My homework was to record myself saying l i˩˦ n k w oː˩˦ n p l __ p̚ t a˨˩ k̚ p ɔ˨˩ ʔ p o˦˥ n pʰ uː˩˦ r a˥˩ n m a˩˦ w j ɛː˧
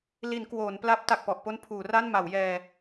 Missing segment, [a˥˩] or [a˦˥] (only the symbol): a˦˥